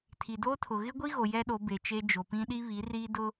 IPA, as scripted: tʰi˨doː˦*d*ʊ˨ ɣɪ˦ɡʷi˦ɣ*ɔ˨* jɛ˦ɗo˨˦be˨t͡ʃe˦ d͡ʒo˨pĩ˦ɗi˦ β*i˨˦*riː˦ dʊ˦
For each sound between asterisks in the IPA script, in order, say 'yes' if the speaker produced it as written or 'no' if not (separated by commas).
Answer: no, no, yes